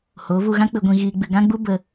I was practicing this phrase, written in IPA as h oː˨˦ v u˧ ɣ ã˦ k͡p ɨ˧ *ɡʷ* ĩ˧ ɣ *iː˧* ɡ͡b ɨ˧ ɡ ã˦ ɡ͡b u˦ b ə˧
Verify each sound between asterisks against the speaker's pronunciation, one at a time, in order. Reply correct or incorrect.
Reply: correct, correct

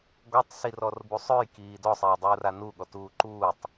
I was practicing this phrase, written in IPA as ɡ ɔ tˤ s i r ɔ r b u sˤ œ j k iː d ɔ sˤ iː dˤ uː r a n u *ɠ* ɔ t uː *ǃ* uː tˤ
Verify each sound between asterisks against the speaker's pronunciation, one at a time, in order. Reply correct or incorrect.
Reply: correct, correct

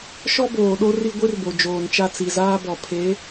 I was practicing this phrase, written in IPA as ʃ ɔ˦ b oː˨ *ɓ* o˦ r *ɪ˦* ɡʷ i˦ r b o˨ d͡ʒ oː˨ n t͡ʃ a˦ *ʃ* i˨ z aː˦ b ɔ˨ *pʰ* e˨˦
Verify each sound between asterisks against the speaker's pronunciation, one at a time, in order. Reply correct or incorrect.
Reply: incorrect: ɗ, incorrect: i˦, incorrect: t͡s, correct

